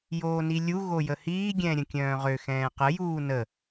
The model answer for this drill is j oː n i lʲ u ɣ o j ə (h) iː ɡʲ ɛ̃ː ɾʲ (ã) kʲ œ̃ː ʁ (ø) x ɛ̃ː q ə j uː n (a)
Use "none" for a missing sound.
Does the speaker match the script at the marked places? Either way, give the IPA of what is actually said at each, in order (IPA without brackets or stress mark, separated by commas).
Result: h, ə̃, ø, ə